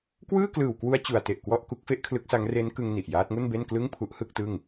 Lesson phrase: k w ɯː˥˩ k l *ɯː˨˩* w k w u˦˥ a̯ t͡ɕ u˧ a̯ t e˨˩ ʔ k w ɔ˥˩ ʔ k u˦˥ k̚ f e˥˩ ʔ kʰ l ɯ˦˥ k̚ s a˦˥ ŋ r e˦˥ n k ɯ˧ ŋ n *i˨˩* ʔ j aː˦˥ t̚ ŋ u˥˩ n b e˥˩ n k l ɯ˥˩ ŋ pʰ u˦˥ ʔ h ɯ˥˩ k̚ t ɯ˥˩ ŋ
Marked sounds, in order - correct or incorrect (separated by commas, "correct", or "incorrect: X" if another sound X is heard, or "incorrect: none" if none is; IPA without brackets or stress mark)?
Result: correct, correct